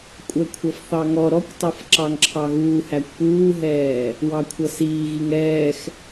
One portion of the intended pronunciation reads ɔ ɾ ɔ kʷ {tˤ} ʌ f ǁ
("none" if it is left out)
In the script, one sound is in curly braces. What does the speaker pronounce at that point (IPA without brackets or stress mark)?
tˤ